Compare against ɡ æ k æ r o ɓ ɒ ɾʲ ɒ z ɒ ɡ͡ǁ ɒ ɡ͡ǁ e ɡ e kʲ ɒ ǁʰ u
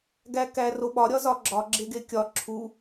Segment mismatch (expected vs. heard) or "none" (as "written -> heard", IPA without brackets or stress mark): none